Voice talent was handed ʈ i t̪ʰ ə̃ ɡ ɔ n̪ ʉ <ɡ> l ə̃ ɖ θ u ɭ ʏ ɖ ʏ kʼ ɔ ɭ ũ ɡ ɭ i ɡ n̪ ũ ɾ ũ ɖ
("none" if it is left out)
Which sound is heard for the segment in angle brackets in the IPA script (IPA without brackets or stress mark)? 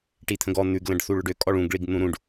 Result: ɡ